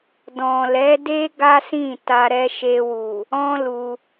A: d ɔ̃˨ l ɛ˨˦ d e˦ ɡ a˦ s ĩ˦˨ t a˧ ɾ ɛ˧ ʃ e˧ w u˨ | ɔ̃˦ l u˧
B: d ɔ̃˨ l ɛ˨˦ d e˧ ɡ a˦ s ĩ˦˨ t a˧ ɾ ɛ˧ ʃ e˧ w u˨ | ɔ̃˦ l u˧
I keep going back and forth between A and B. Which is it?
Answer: A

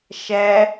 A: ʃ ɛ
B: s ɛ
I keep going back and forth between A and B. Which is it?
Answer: A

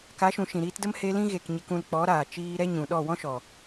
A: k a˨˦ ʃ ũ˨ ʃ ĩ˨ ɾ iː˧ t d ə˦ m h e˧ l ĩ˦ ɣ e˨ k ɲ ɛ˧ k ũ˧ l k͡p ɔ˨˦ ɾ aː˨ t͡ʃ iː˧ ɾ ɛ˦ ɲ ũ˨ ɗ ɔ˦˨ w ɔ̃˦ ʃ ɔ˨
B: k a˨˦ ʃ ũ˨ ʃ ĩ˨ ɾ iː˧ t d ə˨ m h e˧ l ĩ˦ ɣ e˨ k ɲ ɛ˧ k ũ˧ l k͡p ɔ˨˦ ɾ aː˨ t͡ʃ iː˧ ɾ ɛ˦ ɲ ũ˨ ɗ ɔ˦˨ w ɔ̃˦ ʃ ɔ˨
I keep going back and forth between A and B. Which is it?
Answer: A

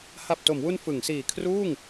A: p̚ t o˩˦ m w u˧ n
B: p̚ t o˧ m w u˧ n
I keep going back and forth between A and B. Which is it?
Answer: A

